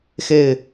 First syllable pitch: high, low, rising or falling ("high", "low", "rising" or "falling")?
falling